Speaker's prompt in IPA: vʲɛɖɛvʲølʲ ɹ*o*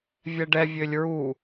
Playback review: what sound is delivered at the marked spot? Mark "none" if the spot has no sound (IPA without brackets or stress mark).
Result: u